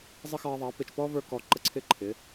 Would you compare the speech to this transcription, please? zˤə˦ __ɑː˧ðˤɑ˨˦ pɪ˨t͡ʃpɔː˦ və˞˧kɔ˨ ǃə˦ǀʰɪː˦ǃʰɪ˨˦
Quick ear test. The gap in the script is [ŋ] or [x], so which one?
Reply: x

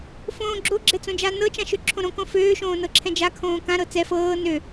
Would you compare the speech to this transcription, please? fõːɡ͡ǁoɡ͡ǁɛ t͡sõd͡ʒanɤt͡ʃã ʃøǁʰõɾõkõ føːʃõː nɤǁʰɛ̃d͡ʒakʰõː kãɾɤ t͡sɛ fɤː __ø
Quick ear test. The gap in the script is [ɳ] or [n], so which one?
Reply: n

